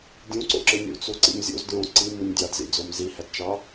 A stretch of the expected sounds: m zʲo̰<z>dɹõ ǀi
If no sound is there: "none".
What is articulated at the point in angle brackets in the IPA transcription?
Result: z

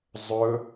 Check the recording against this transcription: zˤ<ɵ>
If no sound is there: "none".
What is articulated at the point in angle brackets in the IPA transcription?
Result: ɵ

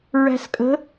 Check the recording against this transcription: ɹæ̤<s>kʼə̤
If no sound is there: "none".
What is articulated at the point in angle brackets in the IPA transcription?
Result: s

